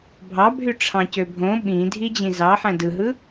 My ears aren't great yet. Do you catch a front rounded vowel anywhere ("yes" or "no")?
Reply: yes